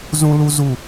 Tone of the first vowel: high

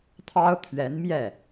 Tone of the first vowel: high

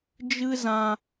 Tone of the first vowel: high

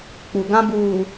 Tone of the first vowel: low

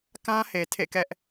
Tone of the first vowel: high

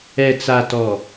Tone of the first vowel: low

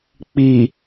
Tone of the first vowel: low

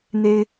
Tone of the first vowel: high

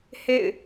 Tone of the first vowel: falling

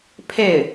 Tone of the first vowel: falling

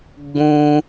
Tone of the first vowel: high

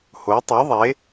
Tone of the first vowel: rising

